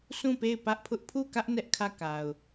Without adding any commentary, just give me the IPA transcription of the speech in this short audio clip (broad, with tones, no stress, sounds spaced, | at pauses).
sʰ ũ˦˨ p e˦˨ ɪ̯ p ä˦ ʔ pʰ ʊ˦ ʔ pʰ u˦˨ k ä˦ ʔ n ɛ˦ ʔ kʰ ä˦˨ k a˨ ʊ̯